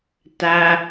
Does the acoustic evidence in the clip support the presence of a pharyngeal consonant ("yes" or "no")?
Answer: no